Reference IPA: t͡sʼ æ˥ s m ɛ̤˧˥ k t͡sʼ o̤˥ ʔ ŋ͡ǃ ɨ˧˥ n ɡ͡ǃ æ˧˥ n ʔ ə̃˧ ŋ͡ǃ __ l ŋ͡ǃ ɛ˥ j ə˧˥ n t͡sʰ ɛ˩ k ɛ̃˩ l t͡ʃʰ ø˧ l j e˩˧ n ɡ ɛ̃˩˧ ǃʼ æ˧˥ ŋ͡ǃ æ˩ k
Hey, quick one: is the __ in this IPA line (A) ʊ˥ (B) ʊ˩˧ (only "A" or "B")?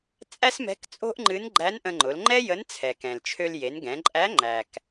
B